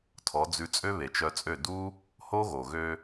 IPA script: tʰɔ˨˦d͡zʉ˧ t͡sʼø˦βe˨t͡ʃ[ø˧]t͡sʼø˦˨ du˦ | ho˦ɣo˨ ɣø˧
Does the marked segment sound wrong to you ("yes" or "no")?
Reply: yes